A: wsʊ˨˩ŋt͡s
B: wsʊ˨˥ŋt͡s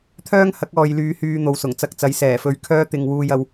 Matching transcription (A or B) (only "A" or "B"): A